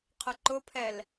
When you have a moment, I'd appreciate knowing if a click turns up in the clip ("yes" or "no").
yes